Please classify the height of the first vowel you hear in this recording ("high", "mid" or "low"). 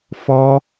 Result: mid